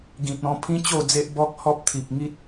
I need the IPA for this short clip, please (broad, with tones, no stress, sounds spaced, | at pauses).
ɡ ĩ˨ t̚ ɔ̃˧ pʰ ĩ˦ t͡ɕ o˥˧ d͡z e˦ ʔ b ɔ˦ k̚ h ɔ˦ p̚ t̪ʰ i˨ p̚ ŋ i˦ t̚